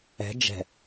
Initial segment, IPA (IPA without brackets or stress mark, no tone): ɛ̤